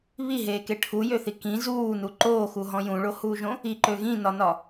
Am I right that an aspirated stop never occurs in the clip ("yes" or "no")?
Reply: no